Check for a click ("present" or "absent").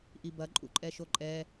present